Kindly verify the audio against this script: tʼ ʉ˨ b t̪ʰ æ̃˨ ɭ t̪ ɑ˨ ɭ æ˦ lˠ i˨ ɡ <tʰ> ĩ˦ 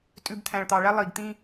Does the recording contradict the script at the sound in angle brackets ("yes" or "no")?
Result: yes